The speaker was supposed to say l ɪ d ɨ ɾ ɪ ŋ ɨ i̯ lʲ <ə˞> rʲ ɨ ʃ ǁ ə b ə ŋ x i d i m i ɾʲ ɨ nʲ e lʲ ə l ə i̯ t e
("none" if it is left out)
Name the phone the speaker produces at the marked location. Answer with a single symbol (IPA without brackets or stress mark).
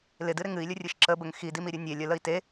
ə